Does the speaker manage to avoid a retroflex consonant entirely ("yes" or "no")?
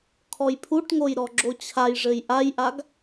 no